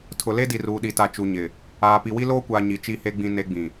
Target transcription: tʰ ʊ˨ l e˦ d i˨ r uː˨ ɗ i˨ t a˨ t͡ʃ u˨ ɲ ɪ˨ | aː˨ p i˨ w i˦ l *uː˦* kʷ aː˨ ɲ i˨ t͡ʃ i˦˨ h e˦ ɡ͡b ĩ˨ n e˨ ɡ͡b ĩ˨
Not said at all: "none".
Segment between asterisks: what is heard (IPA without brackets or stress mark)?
oː˦